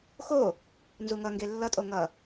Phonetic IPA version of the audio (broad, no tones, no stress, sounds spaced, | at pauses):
x o | n z u ŋ ʌ ŋ ɡ e lː ʌ tʼ o ŋ ʌ